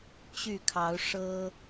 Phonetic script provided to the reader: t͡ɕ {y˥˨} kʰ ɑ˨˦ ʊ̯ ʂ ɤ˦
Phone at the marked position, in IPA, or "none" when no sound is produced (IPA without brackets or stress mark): y˥˨